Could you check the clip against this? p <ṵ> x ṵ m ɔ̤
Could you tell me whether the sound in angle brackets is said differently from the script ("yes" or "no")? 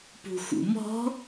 yes